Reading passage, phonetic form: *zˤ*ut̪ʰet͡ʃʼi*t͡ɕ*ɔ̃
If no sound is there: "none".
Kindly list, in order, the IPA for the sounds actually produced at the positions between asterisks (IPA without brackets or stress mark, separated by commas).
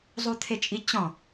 zˤ, t͡ɕ